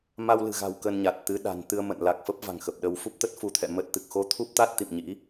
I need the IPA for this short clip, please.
m a˧ w l ɨ̤˨˩ ɣ a̤˨˩ w k ə˧ n ɲ a˨˩ t̚ t̪ ɨ˨˦ ɗ a̤˨˩ n t̪ ɨ˧ ə̯ m ə̰˧˨ n l a˨˩ k̚ f ə˦˥ p̚ v a̤˨˩ ŋ x ə˨˩ p̚ ɗ ə˧ w f u˦˥ p̚ t̪ ə˦˥ t̚ f u˧ t̪ʰ ɛ̰˧˨ m ə˦˥ t̚ t̪ ɨ˨˩ k̚ x o˧ t̪ʰ u˦˥ p̚ t̪ a˦˥ t̚ t̪ ḭ˧˨ m ɲ ḭ˧˥

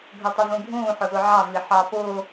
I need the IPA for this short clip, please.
ɡʱ ə tˤ ʊ v ũ ɡʱ ũː ħ ʊ z ʊ ʕ ɑ v i ħ ɑ p ʊː

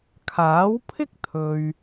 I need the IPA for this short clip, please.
kʰ aː˨˥ w pʰ ɪ˥ k̚ t̪ʰ ɵ˨ ɥ

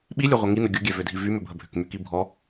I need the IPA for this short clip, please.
ɓ i lʲ ø ʁʷ ɐ ŋ i n ə ɡʲ ʊ ɡʲ ɛ v ʏ dʱ i v y m ʏ bʱ ə bʱ ʏ k m y k i bʱ ɔ

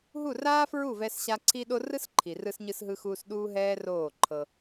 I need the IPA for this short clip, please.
ɦ u˦˨ r aː˦ f ɹ u˦˨ v ɛ˦ s ɕ a˦ ǀʰ i˦ ɗ o˦ r ɯ˦ s ǃʰ i˨ r ɯ˧ s ɲ ɯ˧ s ɦ ɯ˦ x uː˦ s ɗ uː˦ ɦ ɛː˦ r oː˦˨ ǃʰ ɤ˧

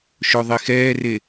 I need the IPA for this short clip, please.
ʃ o ðˤ i x ɛː r e

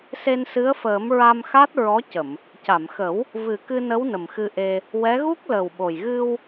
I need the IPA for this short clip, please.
s e˧ n s ɨ˧˥ ə̯ f əː˨˩˦ m ɹ a˧ m x a˦˥ t̚ ɹ ɔ˧˥ c ə˨˩˨ m | c a˨˩˨ m x ə˨˩˦ w | v ɨ˨˩ k ɨ˧ n ə˧˥ w n ə˨˩ m x ɨ˧ ʔ e˧ | w ɛ˧˥ ɣ u˦˥ k̚ l əː˨˩ w ɓ o˨˩ j ɣ ɨ˧ w

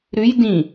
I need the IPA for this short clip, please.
ɾ ʉ j d ĩ

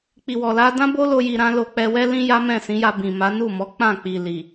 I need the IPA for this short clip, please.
k͡p i˨ w ɔ˨ l a˧ d ã˦ b o˦ l o˧ j i˧ ɾ ã˦ l o˧ k͡p ɛ˧ w ɛ˦ l ĩ˦ j a˦ m ɛ̃˦˨ s ĩ˨˦ j a˧ b ĩ˨ m a˨˦ n u˦˨ m ɔ˨˦ k͡p ã˦˨ k͡p i˨ l i˨

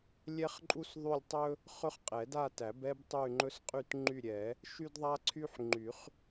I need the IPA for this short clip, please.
lʲ ɛ˥ χ ǃʼ u˥ s ðˤ y˥˧ lʲ tˤ ɵ˥ | χ ɵ˥ χ qʼ ɛ˨˩˦ d a˥˧ t æ˨˩˦ b ɛ˥ b tˤ y˥˧ ŋ͡ǃ ɵ˥ s qʼ y˥˧ t ŋ͡ǃ y˥˧ ɾʲ ɛ˨˩˦ | ʃ y˥ d ðˤ a˥ ǀʰ y˥ ħ ŋ͡ǃ y˨˩˦ χ

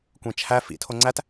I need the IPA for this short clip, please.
kʷ ẽ t͡ʃʰ æ f ḭ tʰ o ŋ͡ǀ æ t

